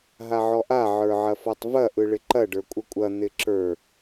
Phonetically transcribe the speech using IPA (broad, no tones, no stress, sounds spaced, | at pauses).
ɦ a ʕ ɔ ʔ a ʕ ə˞ ʕ ɐ f ɔ tˤ v ɐ ʔ ɯ ɭ ɪ ǃ ɐ ɖ ə˞ kʷʼ ə kʷʼ ɐ n̪ ɪ ǁ ə˞